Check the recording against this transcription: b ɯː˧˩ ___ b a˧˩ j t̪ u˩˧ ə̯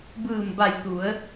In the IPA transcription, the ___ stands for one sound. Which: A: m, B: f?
A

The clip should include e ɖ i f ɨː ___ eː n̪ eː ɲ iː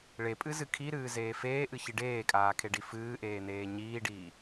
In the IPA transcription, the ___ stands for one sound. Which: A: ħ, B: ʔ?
B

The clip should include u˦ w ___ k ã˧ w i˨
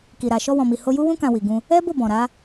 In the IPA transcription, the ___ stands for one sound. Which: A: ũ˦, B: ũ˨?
A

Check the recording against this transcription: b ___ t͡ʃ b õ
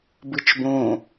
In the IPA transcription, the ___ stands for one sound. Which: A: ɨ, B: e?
A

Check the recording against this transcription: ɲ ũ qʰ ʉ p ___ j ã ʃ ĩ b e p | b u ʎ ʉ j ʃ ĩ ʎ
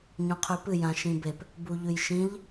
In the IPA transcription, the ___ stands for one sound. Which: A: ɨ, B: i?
A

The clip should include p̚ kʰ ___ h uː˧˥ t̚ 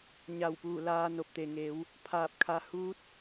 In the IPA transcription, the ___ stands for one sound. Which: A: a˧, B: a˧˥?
B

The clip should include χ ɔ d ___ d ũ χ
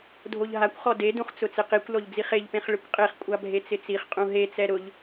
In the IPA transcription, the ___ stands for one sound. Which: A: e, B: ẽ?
A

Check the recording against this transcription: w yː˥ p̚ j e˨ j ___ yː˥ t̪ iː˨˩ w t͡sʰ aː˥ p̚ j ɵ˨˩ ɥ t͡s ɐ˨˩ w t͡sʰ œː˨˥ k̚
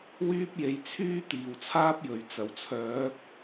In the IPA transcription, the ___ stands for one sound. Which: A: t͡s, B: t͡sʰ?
B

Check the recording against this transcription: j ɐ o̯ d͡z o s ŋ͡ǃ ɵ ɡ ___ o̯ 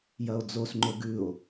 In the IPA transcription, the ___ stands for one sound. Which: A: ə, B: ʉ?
B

